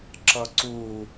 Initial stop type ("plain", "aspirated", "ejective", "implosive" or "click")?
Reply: click